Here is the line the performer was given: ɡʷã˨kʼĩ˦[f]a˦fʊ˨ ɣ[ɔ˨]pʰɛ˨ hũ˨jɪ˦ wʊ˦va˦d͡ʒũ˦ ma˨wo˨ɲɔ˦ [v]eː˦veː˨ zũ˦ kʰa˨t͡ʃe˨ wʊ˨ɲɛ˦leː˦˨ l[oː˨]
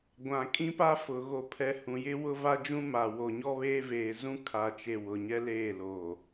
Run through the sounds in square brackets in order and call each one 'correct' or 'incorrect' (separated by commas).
incorrect, incorrect, incorrect, correct